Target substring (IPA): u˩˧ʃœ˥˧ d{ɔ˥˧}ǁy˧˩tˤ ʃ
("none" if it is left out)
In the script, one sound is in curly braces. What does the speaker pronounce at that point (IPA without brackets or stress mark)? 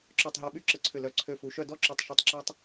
ɔ˥˧